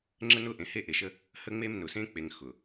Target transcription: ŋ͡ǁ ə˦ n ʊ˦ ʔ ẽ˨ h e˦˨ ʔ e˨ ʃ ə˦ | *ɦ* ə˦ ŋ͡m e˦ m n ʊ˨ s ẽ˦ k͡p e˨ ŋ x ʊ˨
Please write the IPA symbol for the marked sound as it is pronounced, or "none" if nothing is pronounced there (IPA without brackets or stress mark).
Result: h